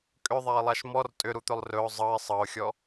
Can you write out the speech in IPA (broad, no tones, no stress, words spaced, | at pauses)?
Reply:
kʼʏðˤaɪ̯lˠaʃ mɔr tʼʏɾut̪ɵlˠ rɵʊ̯ zˤɤɪ̯ sˤɤʊ̯xʲɔ